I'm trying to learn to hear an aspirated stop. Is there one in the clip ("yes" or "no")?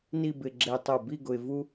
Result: no